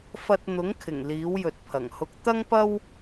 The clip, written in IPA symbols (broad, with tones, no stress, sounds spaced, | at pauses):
f ɐ˧ t̚ n̪ ʊ˨˥ ŋ kʰ ɪ˨˩ ŋ l iː˨˥ w j ɵ˨ t̚ pʰ ɐ˨˩ ŋ h ʊ˧ k̚ t̪ ɐ˥ ŋ p ɐ˥ w